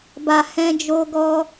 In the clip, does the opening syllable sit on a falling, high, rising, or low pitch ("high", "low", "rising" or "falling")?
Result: low